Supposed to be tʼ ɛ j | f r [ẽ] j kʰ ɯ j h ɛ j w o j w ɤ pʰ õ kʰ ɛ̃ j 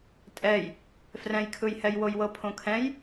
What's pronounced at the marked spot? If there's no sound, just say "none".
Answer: ɛ̃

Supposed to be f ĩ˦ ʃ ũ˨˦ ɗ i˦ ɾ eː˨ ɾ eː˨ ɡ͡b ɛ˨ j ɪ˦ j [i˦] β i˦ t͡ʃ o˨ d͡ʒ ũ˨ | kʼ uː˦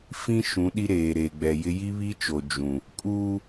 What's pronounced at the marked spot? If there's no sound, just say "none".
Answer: i˦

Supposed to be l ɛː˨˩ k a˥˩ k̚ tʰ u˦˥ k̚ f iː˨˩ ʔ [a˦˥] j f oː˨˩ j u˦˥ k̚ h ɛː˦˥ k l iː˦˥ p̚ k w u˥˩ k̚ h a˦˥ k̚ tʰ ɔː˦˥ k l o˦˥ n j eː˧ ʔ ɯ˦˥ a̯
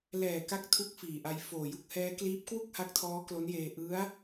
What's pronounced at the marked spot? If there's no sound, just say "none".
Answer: a˧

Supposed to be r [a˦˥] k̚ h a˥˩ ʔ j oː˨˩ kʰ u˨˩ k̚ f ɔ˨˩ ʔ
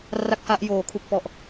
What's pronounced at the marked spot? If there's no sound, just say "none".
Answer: a˥˩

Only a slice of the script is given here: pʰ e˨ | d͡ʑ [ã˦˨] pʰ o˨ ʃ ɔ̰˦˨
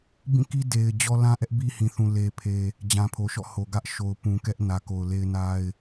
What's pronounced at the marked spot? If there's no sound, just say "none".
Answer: ã˨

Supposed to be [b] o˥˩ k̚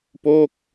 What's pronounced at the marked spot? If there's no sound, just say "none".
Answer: p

